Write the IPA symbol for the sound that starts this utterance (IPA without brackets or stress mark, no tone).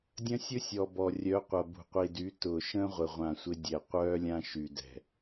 dʲ